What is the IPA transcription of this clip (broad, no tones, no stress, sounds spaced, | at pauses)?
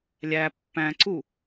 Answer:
lʲ æ pː æ̃ ǀ u